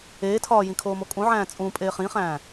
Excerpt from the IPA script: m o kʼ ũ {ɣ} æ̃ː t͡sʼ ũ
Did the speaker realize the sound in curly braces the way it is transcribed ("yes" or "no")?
no